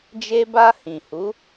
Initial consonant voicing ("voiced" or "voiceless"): voiced